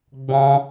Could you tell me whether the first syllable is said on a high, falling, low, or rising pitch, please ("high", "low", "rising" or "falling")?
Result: high